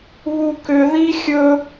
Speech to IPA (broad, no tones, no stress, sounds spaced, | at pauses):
β u k ʏ ð i xʲ ɵ